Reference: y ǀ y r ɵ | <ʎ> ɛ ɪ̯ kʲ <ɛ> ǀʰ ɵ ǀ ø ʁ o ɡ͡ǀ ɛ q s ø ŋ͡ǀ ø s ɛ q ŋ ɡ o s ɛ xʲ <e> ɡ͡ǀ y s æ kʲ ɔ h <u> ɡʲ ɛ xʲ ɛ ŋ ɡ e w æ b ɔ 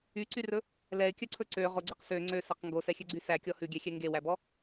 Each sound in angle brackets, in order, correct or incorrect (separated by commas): incorrect, incorrect, incorrect, incorrect